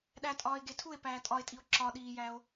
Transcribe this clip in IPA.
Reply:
ɗ æ tʼ ɒː e̯ ɡ e tʰ u e̯ p æː tʼ ɒ e̯ tʼ i o̯ ǁ ɒ ɗ iː j æ o̯

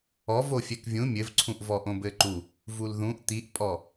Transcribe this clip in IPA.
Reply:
ɔ v o fʲ ɛ k vʲ ũ mʲ ɘ v ǀʰ ũ ʔ v ɔ ʔ õ b ɘ ǃ u | v u l ð ũ ʔ t̪ i ʔ pʼ ɔ

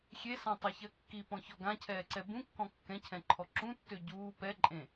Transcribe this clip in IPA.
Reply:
xʲ e s ã tˤ e ç ɜ kː i p ɔ̃ ç ɔ ɡ ã cʰ ɛː ǀ ɛ b ũ kː ɔ̃ kː ɛ̃ cʰ ɛ̃ ǃʰ ɔ ǁ ũ tː ø ɟ uː p ɛ ǃʼ ẽ

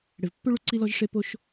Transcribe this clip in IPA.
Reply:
ɽ e˩ v pː ø˥ ɭ u˦ ǀ i˦ l ɔ˦ ʒ ʂ e˦ p o˦ ʃ

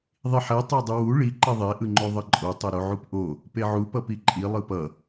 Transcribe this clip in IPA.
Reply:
ðˤ i ħ ɛ tˤ a dˤ ɯ w u ɭ i ǃ ɛ ðˤ e ʔ ɯ ŋ͡ǃ o ðˤ ʌ ǃʼ o tˤ o ɾ o ʕ u p ʔ o | p e ʕ u p ʌ p i ǃʼ i lˠ ɯ p ʌ

